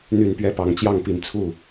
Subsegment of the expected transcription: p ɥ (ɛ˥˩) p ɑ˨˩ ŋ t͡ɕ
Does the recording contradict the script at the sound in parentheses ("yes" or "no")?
no